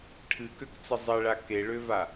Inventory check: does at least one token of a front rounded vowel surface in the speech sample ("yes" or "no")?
yes